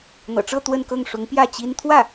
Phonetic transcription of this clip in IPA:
n̪ ɤ̰˨˩ ʈ͡ʂ ɤ˥˧ t̪ w ə˥˧ n k ɤ˥˩ ŋ ʂ ʊ˧˥ ŋ p j ä˥˩ t͡ɕ i˥ n t̪ʰ w ä˥˩

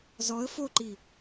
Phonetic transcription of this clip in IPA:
z ɔ ə̯ f o ǃ i

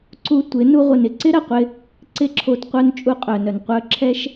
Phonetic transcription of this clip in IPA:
ǀ u˧ tʷ ɪ˨˦ n u˦ ʁʷ ɪ˧ n ɪ˧ ǀ ɪ˦ ɾ ɐ˨ qʷ ɪ˧ | ǀ ɪ˦ ǁʰ o˧ t qʷ œ˦ n t͡ʃʼ u˧ qʼ œ˨ n œ˨ n qʷ œ˧ ǁʰ ɛ˦ ʃ

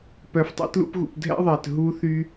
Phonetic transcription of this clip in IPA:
p œ˨ f tˤ ḭ˧ t l ṵ˧ p ɣ ṵ˨ p dʱ ɛ̰˦ ðˤ ɛ˨ t ɦ u˧ θ y˧

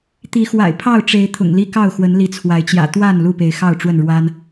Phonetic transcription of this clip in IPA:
t̪ i˨˦ x w a̰˨˩ ɪ̯ pʰ ɑ˥˨ ʊ̯ ʈ͡ʂ e˨˦ ɪ̯ t̪ʰ ʊ̰˨˩ ŋ l i˦ k ɑ˥˨ ʊ̯ x w ə˨˦ n l i˨˦ t͡sʰ w a˨˦ ɪ̯ t͡ɕ j ä̰˨˩ t̪ w a˥˨ n l u˥˨ p e˨˦ ɪ̯ x ɑ˥˨ ʊ̯ ʈ͡ʂ w ə˥˨ n ɻ w a˦ n

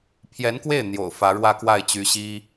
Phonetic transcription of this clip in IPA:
pʰ j ɛ˧˥ n k w e˥˩ ɪ̯ n̪ j o̰˨˩ ʊ̯ f ä˧˥ ɻ w ä˥˧ k w a˥˩ ɪ̯ t͡ɕ y˧˥ ɕ i˥

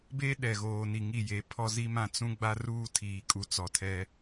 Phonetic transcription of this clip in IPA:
b e˦ ɗ ɛ˨ ɣ oː˨ n i˨ ŋ i˦˨ j e˨˦ pʰ ɔ˦ z i˦ m ã˦ t͡s ũ˦ ɡ͡b a˦ r uː˦ tʰ iː˨ kʼ u˨ t͡s ɔ˨ tʰ ɛ˦

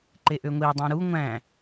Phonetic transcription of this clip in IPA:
ǃ e ʔ ø ŋʷ i dˤ ũ ɾ u ŋʷ æ̃

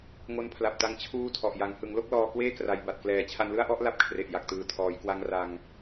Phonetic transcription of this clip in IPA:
ŋ o˦˥ n pʰ l a˨˩ p̚ t a˧ ŋ t͡ɕʰ uː˥˩ tʰ ɔ˨˩ ʔ j a˩˦ ŋ h ɯ˩˦ ŋ l o˥˩ k̚ l ɔː˧ k w eː˥˩ k r a˩˦ j b a˨˩ t̚ k l ɛː˩˦ t͡ɕʰ a˧ n l ɯ˥˩ a̯ ʔ ɔ˥˩ ʔ l a˥˩ p̚ kʰ r e˨˩ ʔ j a˨˩ k̚ t ɯː˨˩ tʰ ɔː˩˦ j k w a˦˥ ŋ r a˧ ŋ

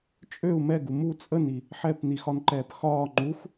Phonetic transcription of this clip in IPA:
t͡ʃʼ ø u̯ m ɛ ɡ u m u t͡sʼ ə n i | ħ ɛ p n i x ɒ n ǃ ɛː p x ɒː ŋ͡ǃ u x

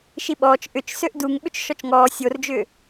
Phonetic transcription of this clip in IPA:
ʃ i ɓ ɔː t͡ʃ ʔ ʏ t͡ʃ s ø ʔ d u ŋ ɓ ʏ t͡ʃ ʃ ɔ t͡ʃ ŋ ɔː sʲ o r d͡ʒ ʏː

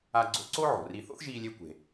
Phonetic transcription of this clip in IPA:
a˧ ɡ͡ǀ o̰˧ ǀ o˥ ʕ o̤˩ r i˧ θ o̰˥ θ ʒ iː˧ lʲ e˧ kʷ e̤˩

